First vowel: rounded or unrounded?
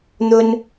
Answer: rounded